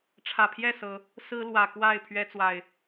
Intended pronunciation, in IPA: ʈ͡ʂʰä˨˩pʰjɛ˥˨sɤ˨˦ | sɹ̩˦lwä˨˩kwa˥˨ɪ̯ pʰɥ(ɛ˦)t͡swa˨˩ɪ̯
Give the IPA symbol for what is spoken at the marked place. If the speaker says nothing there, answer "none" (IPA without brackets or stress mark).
ɛ˦